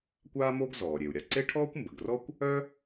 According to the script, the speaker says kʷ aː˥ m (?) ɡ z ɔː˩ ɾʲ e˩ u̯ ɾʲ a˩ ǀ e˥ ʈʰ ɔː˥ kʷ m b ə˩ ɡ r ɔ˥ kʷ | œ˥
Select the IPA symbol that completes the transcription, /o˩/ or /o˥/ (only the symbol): o˥